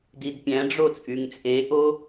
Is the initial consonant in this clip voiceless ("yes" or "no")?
no